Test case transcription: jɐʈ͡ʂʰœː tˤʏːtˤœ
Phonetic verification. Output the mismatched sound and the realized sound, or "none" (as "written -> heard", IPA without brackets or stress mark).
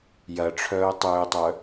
none